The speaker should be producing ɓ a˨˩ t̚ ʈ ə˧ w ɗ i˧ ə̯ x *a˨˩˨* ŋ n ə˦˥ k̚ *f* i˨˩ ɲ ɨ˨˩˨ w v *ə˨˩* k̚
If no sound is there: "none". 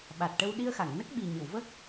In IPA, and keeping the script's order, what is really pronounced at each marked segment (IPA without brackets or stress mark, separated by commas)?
a˨˩˨, ɓ, ə˦˥